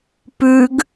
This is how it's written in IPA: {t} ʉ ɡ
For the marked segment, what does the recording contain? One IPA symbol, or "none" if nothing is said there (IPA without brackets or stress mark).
p